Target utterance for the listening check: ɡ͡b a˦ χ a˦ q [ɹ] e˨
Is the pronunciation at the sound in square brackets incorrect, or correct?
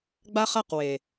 incorrect: w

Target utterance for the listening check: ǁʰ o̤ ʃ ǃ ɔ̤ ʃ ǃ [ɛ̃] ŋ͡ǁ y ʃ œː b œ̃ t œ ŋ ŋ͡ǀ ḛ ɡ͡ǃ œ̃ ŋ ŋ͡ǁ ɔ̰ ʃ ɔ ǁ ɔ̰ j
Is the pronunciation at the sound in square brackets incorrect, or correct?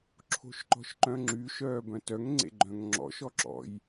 incorrect: œ̃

